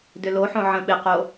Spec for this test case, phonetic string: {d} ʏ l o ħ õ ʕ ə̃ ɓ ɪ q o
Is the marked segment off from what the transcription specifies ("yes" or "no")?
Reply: no